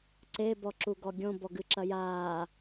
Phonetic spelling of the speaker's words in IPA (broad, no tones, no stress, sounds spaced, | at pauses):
ǀ e b ɔ ǁ u ɡ ɔ ɡʲ õ b ɔ ɡ ɨ ǁ ɐ j aː